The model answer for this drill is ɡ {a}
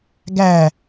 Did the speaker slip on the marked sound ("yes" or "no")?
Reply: yes